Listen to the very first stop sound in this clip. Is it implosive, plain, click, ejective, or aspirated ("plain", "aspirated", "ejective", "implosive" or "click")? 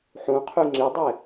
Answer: aspirated